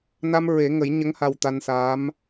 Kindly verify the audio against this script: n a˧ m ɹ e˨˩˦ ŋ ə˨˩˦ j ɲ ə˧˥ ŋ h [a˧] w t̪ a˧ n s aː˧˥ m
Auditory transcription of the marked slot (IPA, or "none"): a˧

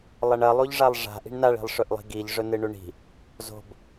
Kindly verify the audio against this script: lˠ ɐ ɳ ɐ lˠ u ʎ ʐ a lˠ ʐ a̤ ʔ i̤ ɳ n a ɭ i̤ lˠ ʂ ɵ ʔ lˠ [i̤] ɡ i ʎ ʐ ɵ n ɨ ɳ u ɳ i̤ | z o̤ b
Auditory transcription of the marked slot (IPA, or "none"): i̤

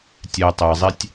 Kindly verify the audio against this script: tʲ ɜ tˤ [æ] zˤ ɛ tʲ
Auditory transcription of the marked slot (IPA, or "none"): æ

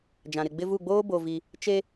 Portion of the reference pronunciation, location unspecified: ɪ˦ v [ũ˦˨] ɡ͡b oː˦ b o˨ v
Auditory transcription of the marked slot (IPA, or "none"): u˦˨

